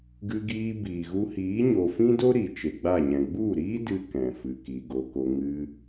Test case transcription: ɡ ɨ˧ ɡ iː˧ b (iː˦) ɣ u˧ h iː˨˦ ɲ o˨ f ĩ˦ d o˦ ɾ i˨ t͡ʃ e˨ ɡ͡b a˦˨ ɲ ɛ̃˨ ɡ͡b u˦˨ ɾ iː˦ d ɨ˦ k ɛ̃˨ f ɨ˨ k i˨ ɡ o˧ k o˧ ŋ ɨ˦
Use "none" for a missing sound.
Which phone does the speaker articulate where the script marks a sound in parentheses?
iː˨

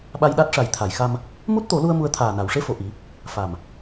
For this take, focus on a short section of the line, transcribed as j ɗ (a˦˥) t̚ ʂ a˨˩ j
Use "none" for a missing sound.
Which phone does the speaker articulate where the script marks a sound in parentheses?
a˦˥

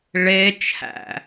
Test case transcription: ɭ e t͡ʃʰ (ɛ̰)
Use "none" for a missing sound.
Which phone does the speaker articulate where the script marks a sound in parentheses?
æ̰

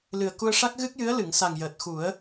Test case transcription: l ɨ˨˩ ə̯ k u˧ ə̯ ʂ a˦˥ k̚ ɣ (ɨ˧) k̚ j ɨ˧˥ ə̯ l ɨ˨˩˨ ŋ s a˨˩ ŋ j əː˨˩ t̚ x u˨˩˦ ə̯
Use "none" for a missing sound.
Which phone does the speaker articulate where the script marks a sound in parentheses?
ɨ˦˥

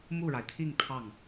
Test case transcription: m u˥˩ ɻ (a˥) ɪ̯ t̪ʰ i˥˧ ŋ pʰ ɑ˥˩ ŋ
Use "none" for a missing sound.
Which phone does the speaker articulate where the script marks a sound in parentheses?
a˩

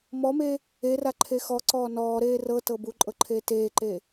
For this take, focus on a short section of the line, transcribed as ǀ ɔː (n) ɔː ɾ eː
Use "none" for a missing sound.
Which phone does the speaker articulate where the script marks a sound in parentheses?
n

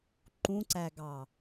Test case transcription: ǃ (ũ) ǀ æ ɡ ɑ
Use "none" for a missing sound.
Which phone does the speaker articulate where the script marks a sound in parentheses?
ũ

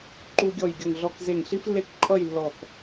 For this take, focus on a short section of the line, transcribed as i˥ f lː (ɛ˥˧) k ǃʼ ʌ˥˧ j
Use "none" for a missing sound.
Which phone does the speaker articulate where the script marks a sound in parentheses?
e˥˧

